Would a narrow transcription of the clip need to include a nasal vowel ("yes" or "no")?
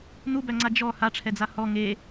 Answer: no